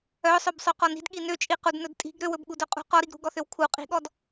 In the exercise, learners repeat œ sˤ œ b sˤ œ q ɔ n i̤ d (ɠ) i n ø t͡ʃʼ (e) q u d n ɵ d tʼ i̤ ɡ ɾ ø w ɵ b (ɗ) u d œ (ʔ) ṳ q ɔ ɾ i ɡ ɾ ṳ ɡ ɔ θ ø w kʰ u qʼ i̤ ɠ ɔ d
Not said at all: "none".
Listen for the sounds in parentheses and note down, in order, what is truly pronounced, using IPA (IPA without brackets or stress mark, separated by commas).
ɠ, i, ɠ, qʼ